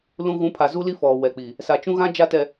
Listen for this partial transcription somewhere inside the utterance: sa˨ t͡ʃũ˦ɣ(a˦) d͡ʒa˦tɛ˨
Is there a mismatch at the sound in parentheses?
yes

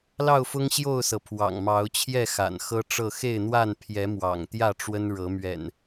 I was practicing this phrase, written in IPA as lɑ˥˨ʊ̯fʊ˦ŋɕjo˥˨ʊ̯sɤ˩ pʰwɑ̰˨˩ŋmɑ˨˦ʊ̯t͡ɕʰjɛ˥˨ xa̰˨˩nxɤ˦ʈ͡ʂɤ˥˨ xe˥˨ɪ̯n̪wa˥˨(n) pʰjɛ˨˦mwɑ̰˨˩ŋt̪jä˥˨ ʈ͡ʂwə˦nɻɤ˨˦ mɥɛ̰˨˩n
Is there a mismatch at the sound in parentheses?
no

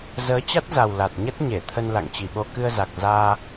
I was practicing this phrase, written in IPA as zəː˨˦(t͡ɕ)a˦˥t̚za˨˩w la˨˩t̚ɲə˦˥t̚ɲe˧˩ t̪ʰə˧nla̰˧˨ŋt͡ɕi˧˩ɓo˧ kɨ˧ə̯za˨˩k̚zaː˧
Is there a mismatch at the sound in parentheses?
no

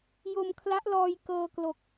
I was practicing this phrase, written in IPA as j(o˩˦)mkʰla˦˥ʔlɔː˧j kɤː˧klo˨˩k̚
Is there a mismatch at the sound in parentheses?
yes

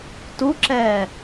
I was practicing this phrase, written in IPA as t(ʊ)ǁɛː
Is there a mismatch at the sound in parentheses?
yes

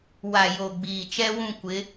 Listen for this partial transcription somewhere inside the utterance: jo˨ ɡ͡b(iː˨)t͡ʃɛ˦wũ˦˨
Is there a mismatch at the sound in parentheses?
no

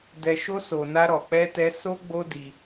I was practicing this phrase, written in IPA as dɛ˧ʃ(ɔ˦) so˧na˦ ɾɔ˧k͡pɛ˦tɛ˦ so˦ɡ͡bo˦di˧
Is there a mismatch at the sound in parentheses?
yes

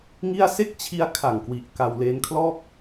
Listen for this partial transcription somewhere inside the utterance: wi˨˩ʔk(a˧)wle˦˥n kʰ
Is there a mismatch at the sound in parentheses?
no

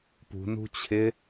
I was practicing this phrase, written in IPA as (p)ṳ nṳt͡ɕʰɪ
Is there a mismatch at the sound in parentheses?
no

